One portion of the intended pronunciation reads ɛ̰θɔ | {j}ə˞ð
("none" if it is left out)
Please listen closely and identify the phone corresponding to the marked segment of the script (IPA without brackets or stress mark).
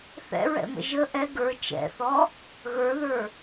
ɣ